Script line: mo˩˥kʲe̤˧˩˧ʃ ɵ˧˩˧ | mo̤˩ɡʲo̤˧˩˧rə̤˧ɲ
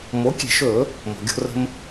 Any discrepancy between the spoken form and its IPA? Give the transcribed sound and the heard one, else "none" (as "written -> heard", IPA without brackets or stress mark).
ɲ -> m